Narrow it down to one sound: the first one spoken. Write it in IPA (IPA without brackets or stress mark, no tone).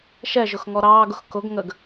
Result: ʃ